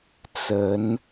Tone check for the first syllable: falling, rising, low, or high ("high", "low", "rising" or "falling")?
rising